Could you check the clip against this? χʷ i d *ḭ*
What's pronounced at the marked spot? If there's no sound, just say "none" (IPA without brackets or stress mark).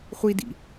ḭ